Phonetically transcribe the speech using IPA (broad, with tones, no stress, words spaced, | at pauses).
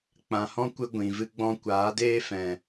k͡pã˨hɔ̃˦kʷɨ˧ ɡʷĩ˨vɨ˦ɡ͡bɔ̃˦ kʷaː˨˦deː˦fɛ̃˨